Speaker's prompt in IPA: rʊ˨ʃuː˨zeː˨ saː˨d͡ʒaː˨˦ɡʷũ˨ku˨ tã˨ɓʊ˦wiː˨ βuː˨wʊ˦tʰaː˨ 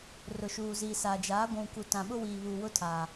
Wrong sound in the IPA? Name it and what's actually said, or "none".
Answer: eː˨ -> iː˨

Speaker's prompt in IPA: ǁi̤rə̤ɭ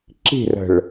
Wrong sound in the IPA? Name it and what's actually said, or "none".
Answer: none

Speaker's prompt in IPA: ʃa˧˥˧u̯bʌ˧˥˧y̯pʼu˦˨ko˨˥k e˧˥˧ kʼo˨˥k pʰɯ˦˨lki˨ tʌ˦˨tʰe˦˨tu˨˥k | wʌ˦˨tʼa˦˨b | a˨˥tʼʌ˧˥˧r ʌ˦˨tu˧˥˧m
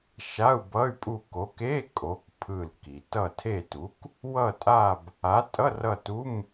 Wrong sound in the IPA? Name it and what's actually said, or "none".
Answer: none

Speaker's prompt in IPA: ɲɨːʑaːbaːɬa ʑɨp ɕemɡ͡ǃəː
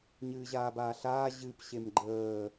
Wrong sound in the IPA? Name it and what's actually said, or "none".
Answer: a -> aː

